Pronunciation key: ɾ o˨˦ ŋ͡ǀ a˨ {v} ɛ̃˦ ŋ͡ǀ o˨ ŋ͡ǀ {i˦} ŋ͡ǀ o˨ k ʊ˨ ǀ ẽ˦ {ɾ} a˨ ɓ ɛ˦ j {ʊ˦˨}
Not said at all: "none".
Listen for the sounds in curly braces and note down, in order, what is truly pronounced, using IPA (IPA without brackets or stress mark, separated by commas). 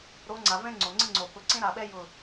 v, ɪ˦, ɾ, ʊ˦˨